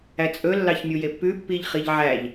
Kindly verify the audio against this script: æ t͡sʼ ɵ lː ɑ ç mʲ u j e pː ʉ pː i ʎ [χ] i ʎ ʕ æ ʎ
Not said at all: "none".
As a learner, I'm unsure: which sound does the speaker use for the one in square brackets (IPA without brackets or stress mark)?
χ